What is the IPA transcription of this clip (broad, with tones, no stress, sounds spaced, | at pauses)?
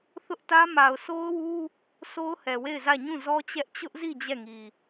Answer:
θ ʊ˦ ʔ t ä˦ m a˨ ʊ̯ sʰ o˦ ʊ̯ w u˦ | s o˦ ʊ̯ h ɛ˨ w e˦˨ ɪ̯ z ä˦˨ ɲ ũ˦˨ z ɔ˦ t͡ɕ ɛ˦ ʔ t͡ɕ ʊ˦ ʔ z i˦˨ d͡ʑ ɛ˦˨ ŋ i˨